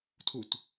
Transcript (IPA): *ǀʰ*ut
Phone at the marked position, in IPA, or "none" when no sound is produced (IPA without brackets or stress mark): tʰ